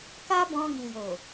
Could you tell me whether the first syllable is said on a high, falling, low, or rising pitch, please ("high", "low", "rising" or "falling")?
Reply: high